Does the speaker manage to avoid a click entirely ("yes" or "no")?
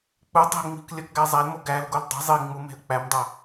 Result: yes